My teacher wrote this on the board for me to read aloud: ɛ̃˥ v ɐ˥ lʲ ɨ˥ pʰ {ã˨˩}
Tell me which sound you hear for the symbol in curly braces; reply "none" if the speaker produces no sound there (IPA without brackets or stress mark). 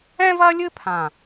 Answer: ã˨˩